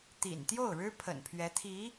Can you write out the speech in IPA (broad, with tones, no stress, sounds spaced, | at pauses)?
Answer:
t̪ ḭ˨˩ n t̪ j o˥˩ ʊ̯ ɻ ɻ̩˥ pʰ ə̰˨˩ n pʰ ɥ ɛ˧˥ t̪ʰ i˧˥